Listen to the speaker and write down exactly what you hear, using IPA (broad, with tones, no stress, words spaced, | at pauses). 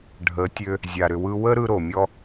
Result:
ɖʱə˨˦tʲø˧ | zʲa˧ɾʏ˧wɯ˦ wə˦ ɾɯ˧ɾo˨mʲɔ˧